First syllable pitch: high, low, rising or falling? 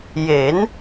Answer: rising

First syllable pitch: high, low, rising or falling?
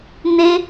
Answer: high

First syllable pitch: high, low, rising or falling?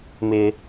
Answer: high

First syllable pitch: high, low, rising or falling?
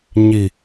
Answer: low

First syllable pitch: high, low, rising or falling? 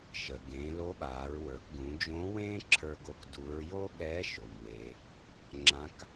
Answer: low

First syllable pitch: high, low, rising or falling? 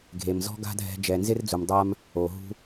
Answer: low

